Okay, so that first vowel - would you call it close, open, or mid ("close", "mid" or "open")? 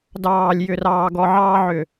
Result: open